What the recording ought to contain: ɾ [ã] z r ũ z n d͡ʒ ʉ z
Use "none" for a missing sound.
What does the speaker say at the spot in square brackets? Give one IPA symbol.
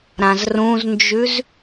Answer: ã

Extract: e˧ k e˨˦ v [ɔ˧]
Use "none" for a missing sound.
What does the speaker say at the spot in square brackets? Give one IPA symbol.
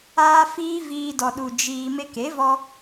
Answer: ɔ˧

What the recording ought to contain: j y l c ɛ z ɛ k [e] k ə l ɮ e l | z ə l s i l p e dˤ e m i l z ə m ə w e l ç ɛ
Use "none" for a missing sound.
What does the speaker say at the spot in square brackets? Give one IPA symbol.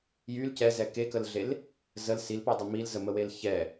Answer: e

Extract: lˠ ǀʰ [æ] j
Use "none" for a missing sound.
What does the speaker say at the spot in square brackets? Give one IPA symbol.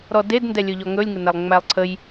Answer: ə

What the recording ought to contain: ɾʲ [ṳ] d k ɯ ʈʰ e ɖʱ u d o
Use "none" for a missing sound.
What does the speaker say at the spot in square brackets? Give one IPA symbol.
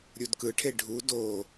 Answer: u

